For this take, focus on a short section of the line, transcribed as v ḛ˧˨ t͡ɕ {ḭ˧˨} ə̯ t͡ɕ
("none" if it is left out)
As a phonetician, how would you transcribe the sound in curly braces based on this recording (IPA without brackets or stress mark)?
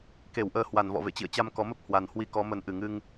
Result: ḭ˧˨